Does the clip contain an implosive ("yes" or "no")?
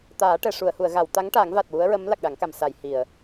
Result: yes